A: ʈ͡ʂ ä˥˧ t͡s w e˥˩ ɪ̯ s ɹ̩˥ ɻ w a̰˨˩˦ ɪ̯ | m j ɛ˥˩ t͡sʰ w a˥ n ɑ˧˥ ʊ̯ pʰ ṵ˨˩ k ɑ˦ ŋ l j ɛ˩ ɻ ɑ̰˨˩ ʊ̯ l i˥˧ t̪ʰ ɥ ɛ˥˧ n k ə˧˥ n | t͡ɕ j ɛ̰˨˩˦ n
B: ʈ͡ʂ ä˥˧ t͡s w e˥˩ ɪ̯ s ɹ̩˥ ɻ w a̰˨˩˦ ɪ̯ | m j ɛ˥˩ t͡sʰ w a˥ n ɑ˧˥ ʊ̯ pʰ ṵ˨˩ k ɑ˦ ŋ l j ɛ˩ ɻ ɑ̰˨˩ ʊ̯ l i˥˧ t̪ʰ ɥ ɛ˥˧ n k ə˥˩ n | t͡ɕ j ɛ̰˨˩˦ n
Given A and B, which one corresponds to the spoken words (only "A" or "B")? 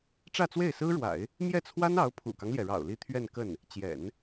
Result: B